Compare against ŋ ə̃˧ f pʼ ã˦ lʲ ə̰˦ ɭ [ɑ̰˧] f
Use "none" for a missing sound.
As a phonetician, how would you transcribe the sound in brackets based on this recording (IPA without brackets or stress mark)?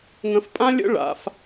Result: a̰˧